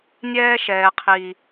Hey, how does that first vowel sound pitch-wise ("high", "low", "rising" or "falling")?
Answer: high